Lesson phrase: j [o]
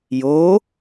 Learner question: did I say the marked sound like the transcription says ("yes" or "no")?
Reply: yes